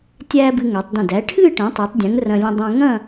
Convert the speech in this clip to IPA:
tʲ æː˥ b ɨ˧ ŋ æ˩˧ tˤ d ə̃˧˩ d æ˩˧ ʈʰ ɨː˥˧ ʈ ə̃ː˩˧ tˤ æ˩˧ tˤ dʲ ɛ̃˩˧ ŋ r ɐ̃˧ lʲ ə̃˧ dˤ ə̃ː˧ ŋ ɐ̃˥˧

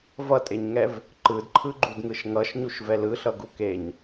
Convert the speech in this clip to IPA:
v ʌ tʼ e ɲ ŋ ɛ v | ǃ ɯ d ǃʰ ɯ ɡ͡ǃ u d ŋ ɯ ʃ ŋ ʌ ʃ ɲ u ʃ v ɛ l ɯ ɬ ʌ ɡ u k e ɲ

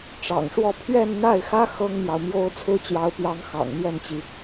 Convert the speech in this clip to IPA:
ʈ͡ʂ ɑ̰˨˩ ŋ ʂ w ɔ˥˧ pʰ ɥ ɛ˥˧ n n̪ a˥˩ ɪ̯ x ä˥ x ɤ˥ ŋ m j ɑ˨ ʊ̯ m j o˥ ʊ̯ t͡sʰ ɹ̩˥ t͡ɕ j ɑ˧˥ ʊ̯ p j ɑ˧˥ ŋ x ɑ̰˨˩ ŋ m j ɛ˥˩ n t͡ɕ i˩

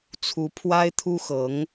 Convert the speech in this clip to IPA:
t͡sʰ u˧˥ pʰ w a˥ ɪ̯ t̪ʰ u˥ x ɤ˧˥ ŋ

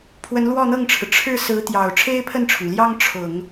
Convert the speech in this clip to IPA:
pʰ w ə˧˥ n l w ɔ˥˧ n̪ ɤ˥˩ ŋ ʈ͡ʂʰ ɻ̩˩ ʈ͡ʂʰ ɻ̩˥˩ s ɹ̩˧˥ t̪ j ɑ˨˩ ʊ̯ ʈ͡ʂʰ e˥ ɪ̯ pʰ ə˥˩ n ʈ͡ʂʰ ʊ˩ ŋ l j ɑ˥ ŋ ʈ͡ʂʰ ʊ˨˩˦ ŋ

